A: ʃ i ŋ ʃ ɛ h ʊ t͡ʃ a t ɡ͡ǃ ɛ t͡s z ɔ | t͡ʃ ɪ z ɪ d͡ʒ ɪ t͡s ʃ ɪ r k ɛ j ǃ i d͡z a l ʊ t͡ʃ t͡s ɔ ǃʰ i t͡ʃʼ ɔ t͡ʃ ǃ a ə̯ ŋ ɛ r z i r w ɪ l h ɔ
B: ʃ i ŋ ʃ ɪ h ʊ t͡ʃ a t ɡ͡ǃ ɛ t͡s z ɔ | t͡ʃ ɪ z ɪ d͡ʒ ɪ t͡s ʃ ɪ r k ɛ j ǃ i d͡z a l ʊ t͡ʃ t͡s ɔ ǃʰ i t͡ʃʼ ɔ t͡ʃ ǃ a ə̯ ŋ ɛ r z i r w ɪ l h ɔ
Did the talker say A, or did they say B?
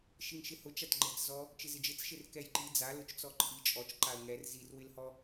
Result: B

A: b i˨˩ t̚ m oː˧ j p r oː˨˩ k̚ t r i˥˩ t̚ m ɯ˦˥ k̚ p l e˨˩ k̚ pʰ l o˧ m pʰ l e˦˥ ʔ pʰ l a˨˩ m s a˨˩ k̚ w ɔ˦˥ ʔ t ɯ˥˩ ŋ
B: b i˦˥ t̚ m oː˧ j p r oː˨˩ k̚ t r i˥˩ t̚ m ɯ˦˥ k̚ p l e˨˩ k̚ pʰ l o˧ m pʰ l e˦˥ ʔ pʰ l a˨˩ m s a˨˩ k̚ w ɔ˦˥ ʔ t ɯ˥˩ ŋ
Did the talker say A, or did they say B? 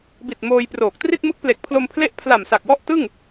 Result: A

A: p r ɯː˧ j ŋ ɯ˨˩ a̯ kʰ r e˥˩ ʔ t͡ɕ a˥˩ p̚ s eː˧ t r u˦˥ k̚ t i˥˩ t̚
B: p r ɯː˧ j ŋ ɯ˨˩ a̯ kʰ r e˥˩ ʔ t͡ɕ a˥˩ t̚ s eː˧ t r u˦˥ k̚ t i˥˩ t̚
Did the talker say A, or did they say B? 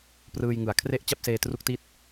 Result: A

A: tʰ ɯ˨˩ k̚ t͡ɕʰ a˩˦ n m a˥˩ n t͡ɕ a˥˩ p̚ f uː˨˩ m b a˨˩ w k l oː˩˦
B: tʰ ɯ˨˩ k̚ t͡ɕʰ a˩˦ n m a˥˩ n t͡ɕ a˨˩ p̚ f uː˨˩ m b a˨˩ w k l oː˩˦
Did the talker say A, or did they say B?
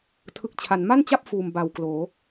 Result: A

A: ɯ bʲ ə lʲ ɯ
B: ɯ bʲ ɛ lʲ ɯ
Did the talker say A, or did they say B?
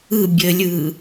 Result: A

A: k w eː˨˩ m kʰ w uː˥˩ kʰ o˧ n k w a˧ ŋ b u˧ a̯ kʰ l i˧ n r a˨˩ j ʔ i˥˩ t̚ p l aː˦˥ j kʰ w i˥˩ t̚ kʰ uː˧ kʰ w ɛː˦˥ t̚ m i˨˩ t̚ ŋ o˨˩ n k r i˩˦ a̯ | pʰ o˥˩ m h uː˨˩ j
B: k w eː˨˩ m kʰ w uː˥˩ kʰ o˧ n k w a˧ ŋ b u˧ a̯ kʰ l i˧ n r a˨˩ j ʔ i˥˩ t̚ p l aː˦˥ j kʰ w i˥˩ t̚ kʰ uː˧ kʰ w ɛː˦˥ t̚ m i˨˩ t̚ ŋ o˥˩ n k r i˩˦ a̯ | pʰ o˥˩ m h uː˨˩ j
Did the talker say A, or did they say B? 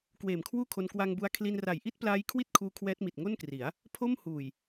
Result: B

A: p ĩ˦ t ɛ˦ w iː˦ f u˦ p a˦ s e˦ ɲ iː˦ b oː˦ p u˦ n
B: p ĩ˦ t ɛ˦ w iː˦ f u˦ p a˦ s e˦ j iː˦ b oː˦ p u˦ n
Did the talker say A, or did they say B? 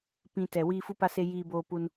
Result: B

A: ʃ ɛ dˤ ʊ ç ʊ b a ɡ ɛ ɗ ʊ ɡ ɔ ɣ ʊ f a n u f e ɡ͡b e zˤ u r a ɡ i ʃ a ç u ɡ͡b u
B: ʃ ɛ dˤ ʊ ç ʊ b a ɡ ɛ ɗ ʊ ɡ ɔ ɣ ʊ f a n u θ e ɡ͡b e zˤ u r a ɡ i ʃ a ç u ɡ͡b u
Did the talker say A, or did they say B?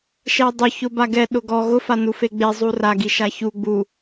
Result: A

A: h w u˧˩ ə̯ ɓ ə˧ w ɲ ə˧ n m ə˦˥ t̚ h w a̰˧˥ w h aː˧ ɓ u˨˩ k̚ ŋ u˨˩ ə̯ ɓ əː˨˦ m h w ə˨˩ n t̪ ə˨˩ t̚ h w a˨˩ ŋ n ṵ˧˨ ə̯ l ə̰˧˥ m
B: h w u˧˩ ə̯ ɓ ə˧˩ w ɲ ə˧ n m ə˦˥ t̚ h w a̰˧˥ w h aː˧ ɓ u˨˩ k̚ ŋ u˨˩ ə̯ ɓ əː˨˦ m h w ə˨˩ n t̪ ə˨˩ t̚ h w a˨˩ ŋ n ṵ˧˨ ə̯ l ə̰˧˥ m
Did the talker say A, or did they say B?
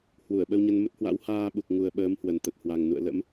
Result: A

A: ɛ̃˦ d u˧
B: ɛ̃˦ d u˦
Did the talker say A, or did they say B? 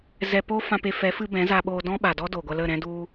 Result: B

